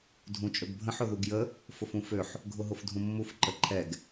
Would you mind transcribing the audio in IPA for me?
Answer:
dʱ ũ t͡ʃʼ ɵ ɡ bʱ ə̃ ħ ʊ ð u ɡ j ə | f ʊ f ũ f ø ħ | ɡʱ ʊ ɦ ʊ f dʱ ũ mː u f ǃ ə ǃʰ ɛ ɡ

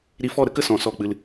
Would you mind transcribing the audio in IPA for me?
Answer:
ɾ i˧ f ɔ˦˨ ɾ ə˦ k ə˧ s ɔ̃˨ s ɔ˦˨ k͡p ɨ˧ l

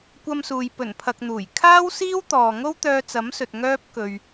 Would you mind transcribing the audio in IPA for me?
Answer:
kʷ ɐ˧ m s uː˨ j p ɵ˨˩ n pʰ ɐ˨ k̚ n̪ uː˨˩ j kʰ aː˥ w s iː˥ w t̪ ɔː˨ ŋ o˥ w t̪ œː˧ t͡s ɐ˨˥ m s ɵ˨ t̚ ŋ œː˥ p̚ k ɵ˨ ɥ

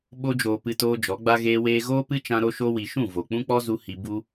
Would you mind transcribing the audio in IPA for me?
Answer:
ɓ o˧ d͡ʒ oː˨ p ɨ˧ t oː˧ d͡ʒ ɔ˨˦ ɡ͡b a˦ ɣ eː˦ w eː˦ ɣ oː˦ p ɨ˦ t͡ʃ ã˧ ɾ o˧ ʃ o˧ w i˨ ʃ ũ˦˨ v o˨ k͡p ũ˦ k͡p ɔ˦ z u˧ h i˧ b u˧

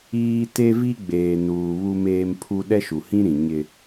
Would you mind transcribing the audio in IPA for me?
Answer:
iː˦ t e˦ v i˦ ɡ͡b eː˨ n uː˨ β u˦ m eː˦ m pʰ u˦ ɗ ɛ˦ ʃ u˨ h ĩ˦ ɾ ĩ˨ ɲ ɪ˦

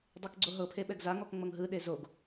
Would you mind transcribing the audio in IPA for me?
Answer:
dˤ e k ɡ͡ǀ o ɦ ɤ pʰ e ɓ ɛ ɡ z a ŋ ɔ k ŋ͡m ɤ ŋ ɦ ɯ ɗ e z o ɡ

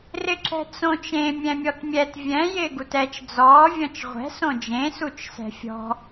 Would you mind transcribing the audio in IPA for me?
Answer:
r ɪ ǁ ɛ̤ t͡s õ t͡ʃ ẽ mʲ ɛ̃ mʲ ɔ t mʲ ɛ t vʲ ɛ̃ j ɪː ɡ u t ɛ t͡ʃ d͡z ɔː vʲ ɔ̃ t͡ʃ ʁʷ ɛ̤ s õ d͡ʒ ẽ s u t͡ʃ s ɛ̤ fʲ ɔ̤

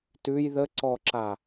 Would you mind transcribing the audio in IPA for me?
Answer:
t ʉ j ð ə ǀ ɔ ǁ a

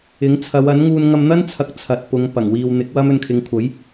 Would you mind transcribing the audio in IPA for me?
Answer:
ɪ˨˥ ŋ t͡sʰ ɐ˨˧ w ɐ˨˥ n ŋ uː˧ n ŋ ɐ˧ m n̪ ɐ˥ n t͡sʰ ɐ˨˥ k̚ t͡sʰ ɐ˨ t̚ p ʊ˨˧ ŋ p ɐ˨˩ ŋ w iː˨ w n̪ ɪ˨˥ k̚ w ɐ˥ m ɵ˧ n kʰ ɪ˨˧ ŋ kʷʰ ɐ˨˥ j

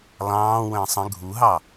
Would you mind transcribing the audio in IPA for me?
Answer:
lˠ ɑ̃ː w ə̃ː sˤ ə̃ ɡʱ u ɦ ɑ

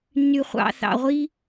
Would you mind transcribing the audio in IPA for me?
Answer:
nː y˨ χʷ ɑ̰˨ θ ɑ̰˨ ʁʷ i˦

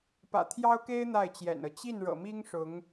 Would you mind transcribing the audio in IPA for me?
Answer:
p ä̰˨˩ t̪ʰ j ɑ˥ ʊ̯ k e˥ ɪ̯ n̪ a˥˩ ɪ̯ t͡ɕ j ɛ̰˨˩ n ɤ˦ t͡ɕ i˥˩ n ɻ ɤ̰˨˩ m i˥ ŋ ʂ ʊ˧˥ ŋ

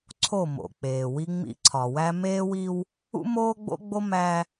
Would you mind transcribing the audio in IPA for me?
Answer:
ǀʰ o˦˨ m o̰˨ k͡p eː˨ w i˦ ŋ͡m ḭ˦ ǀʰ ɒ˨ w æ˦ m eː˦ w i˦ w | ṵ˦ m oː˦ ɡ͡b o̰˦ ɡ͡b o˦ m æ˦

